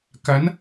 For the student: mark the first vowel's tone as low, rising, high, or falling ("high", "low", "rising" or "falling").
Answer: rising